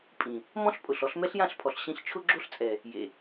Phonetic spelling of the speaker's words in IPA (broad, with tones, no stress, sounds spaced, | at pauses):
pʼ ĩ˨ | m ɔ̃˦ ɬ pʼ ʊ˨ ɬ ɔ˧ ɬ m ɛ˦ ɬ j ã˦˨ ɬ pʰ ɔ˨ ɬ ɕ ĩ˧ ɬ t͡ʃʰ ʊ˦ ɡ͡ǁ o˦ ɬ t͡sʼ ɛ˨ | j ḛ˨